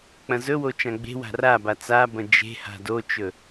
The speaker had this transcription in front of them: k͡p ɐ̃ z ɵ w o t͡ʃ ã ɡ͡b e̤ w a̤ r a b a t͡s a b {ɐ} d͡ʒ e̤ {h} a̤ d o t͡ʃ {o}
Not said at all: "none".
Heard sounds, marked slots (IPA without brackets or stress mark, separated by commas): ɐ̃, h, ɵ